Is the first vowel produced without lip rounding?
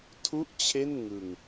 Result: no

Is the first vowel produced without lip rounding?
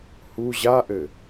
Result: no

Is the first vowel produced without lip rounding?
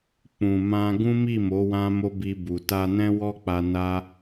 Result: no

